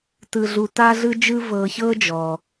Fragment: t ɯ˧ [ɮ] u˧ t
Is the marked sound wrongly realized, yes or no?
no